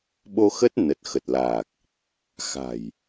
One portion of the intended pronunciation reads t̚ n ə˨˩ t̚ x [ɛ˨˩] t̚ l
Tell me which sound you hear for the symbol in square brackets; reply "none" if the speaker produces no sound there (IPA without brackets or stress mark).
ə˨˩